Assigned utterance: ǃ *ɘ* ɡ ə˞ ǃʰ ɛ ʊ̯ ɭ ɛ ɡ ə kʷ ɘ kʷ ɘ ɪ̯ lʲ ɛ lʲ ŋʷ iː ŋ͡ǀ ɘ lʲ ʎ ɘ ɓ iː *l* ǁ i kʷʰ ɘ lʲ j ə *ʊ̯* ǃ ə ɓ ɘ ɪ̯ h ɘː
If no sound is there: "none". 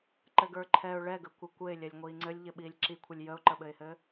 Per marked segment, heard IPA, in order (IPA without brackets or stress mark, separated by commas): ɘ, lʲ, ʊ̯